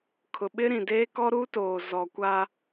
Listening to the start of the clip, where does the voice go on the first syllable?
low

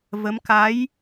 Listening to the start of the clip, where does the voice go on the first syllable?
rising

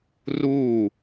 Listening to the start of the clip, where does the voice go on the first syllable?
falling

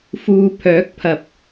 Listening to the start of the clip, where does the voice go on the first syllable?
low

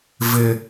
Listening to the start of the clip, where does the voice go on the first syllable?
low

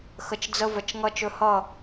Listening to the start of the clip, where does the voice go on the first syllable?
low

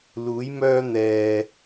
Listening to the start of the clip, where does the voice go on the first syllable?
rising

